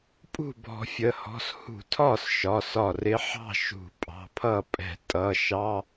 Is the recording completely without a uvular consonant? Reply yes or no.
yes